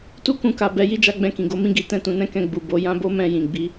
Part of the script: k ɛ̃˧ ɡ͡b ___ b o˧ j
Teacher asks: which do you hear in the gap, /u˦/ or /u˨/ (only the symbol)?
u˨